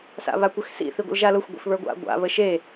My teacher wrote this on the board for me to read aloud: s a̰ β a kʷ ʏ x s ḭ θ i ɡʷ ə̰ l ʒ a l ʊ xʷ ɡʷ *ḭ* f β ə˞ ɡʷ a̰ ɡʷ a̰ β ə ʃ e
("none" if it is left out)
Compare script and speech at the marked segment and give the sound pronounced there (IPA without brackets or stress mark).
ḭ